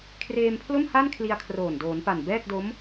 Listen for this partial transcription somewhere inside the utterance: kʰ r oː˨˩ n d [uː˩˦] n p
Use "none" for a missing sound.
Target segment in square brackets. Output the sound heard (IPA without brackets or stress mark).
oː˩˦